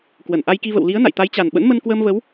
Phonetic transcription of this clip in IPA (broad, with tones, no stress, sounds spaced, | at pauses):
k w ə˧˩ n ʔ a˧ j k i˧ v ə̰˧˨ w l i˨˦ ə̯ n a̰˧˨ j t̪ a˨˦ j t͡ɕ a˨˩ n ɓ ə̰˧˥ n m ə˧ n k w əː˧ m v ə˨˦ w